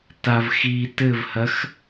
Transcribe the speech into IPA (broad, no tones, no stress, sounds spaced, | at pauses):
t a v x i t ɘ v h ɐ x